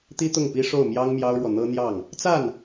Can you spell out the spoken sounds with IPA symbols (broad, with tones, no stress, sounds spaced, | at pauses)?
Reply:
t̪ i˥ t̪ ʊ˥˩ ŋ p i˥ ʂ o˥˩ ʊ̯ m j ɑ˥ ŋ m j ɑ˥ ʊ̯ ɻ w ɔ˨ n̪ ɤ˥ n̪ j ɑ˥˩ ŋ | t͡s a˥˩ n